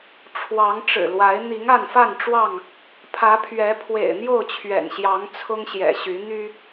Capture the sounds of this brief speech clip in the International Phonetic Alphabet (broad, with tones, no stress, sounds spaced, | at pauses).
ʈ͡ʂʰ w ɑ˨˦ ŋ ʈ͡ʂ ɻ̩˨˩ l w a˨˦ ɪ̯ n̪ i˨˦ ŋ a˥˨ n f a˥˨ n ʈ͡ʂ w ɑ˥˨ ŋ | pʰ ä˨˦ pʰ ɥ ɛ˨˦ pʰ w ḛ˨˩ ɪ̯ n̪ j o˥˨ ʊ̯ t͡ɕʰ ɥ ɛ̰˨˩ n ɕ j ɑ˨˦ ŋ t͡sʰ ʊ˦ ŋ ɕ j ɛ̰˨˩ ɕ y˨˦ n̪ y˦